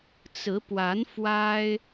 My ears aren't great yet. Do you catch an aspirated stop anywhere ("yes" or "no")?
no